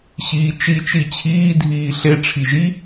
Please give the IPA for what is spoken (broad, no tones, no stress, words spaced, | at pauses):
ɕiːt͡ʃi t͡ʃit͡ɕʰiː dʱiːɬe ʈ͡ʂʰiʒi